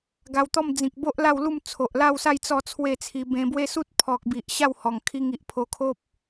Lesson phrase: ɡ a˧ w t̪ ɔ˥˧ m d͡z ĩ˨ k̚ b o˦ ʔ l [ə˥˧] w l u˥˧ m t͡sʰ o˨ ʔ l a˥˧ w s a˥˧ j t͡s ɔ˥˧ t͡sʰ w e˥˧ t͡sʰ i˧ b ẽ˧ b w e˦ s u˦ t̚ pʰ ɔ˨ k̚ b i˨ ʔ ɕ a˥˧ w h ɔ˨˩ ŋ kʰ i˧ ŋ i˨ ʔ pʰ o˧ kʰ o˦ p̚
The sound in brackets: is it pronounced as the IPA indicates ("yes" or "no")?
no